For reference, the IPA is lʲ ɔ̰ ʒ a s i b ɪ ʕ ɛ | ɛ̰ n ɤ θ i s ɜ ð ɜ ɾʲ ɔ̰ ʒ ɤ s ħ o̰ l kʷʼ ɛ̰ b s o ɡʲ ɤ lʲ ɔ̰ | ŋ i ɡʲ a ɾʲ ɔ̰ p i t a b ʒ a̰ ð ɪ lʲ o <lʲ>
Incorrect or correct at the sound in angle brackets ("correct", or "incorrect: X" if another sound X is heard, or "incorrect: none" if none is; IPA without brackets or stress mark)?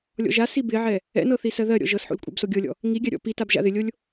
correct